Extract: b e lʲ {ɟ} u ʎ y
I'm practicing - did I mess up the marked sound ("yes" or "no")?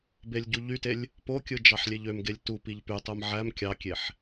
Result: no